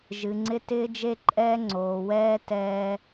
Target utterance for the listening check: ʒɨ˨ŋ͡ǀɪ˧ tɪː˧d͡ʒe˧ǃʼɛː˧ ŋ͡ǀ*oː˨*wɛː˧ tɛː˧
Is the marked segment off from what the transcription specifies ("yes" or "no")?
no